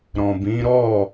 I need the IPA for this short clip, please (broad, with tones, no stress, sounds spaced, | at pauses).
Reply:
ɾ ɔ̃˨ b ĩ˨˦ ɾ ɔ˦˨